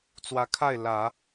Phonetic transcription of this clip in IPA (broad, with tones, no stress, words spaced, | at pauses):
t͡swä˧˥kʰa˥˩ɪ̯ lä˨˩˦